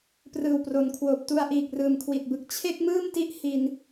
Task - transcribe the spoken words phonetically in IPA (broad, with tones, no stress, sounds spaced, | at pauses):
p r ɯː˨˩ w p r o˩˦ n kʰ w oː˨˩ p̚ t u˧ a̯ ʔ iː˨˩ k̚ r ɯː˨˩ m kʰ w i˨˩ t̚ b ɯ˨˩ k̚ t͡ɕʰ e˥˩ k̚ m ɯː˥˩ m t i˦˥ ʔ h i˧ n